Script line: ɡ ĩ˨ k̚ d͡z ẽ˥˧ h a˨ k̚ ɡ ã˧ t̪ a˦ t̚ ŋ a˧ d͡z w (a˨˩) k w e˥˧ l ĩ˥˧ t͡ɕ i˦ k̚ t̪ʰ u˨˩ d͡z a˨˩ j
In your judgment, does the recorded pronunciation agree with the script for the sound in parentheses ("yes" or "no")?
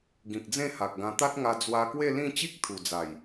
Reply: no